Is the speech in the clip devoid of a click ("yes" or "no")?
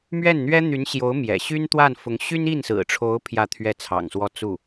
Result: yes